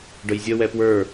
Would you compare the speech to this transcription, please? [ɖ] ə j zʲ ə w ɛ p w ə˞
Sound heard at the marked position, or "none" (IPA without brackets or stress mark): ɖ